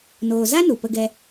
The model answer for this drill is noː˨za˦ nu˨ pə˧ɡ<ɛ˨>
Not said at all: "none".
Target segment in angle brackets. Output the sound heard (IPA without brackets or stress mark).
ɛ˧